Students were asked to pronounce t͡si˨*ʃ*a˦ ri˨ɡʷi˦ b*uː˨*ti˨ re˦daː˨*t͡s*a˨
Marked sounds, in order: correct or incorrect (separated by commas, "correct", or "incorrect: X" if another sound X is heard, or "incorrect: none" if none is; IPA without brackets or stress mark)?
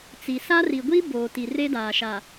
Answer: incorrect: s, incorrect: oː˨, incorrect: ʃ